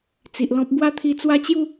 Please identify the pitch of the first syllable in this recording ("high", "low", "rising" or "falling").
low